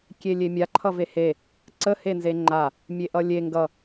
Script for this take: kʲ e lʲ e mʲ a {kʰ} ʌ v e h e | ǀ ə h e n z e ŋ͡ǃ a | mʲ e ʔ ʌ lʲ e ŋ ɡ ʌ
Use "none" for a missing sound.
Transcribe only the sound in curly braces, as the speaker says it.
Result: ǃʰ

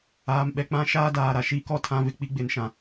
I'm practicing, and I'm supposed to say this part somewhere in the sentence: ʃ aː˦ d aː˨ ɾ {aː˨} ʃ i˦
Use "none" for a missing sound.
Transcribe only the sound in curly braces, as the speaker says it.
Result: a˨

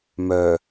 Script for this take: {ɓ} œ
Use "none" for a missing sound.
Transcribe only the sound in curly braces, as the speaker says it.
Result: m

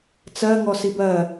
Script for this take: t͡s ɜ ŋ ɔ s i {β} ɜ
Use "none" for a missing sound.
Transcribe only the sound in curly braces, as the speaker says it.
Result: b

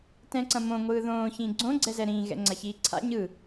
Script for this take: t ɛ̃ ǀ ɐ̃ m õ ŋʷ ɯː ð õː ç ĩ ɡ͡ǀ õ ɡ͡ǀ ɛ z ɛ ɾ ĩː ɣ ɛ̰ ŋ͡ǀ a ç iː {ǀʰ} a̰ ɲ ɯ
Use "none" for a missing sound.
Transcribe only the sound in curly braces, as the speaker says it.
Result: ǀʰ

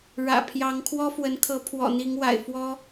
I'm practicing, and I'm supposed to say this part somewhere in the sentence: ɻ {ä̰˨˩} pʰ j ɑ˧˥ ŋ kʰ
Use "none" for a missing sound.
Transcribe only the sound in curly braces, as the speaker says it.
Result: ä̰˨˩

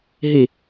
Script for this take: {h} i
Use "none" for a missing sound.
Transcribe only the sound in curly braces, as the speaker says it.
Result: ɦ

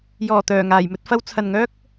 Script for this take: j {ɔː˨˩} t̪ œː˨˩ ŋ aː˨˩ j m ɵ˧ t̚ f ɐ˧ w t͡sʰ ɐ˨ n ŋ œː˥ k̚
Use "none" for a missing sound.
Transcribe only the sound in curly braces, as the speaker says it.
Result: ɔː˨˩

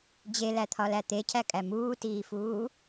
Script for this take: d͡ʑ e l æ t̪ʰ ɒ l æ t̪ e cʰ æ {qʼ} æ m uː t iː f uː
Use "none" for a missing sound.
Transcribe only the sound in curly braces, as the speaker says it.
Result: kʼ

